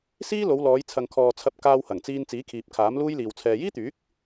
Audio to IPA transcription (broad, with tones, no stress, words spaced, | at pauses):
siː˥ lo˨˧wlɔː˨˧jt͡sʰɐ˨ŋkʰɔː˨ t͡sʰɐ˧p̚ kaː˧whɐ˨˩ŋt͡siː˧n t͡siː˨˥kʰiː˨p̚ kʰaː˨˥mluː˥jliː˨w t͡sʰɛː˨jiː˥t̪yː˨˥k̚